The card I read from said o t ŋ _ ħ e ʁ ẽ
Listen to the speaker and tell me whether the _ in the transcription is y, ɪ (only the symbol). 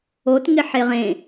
ɪ